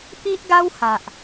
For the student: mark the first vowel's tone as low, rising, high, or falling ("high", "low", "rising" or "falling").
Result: high